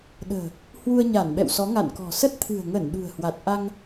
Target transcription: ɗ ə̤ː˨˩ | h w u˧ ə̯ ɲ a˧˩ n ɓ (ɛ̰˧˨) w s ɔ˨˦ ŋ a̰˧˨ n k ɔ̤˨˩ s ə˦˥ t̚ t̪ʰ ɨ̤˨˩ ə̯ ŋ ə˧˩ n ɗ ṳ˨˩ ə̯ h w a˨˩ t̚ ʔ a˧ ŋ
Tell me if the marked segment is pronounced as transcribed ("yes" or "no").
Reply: yes